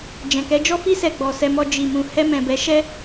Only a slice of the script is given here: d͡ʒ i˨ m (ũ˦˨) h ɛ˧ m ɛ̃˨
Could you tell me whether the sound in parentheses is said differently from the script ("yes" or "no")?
yes